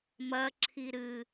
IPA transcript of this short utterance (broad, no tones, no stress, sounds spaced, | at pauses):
m ɐ ǁʰ i ɾ ɨ